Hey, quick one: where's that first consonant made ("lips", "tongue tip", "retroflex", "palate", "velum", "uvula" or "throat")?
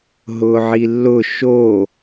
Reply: throat